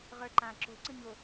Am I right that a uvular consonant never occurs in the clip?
no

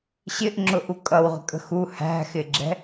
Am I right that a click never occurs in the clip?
no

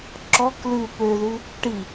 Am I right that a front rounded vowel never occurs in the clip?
no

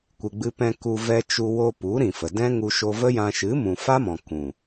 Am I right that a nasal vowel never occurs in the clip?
no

